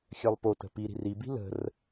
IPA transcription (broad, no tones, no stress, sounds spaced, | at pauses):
xʲ œ lˠ p o t ə̤ p i ɾ i̤ r i b i̤ l ə̤ r